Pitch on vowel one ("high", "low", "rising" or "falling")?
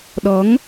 rising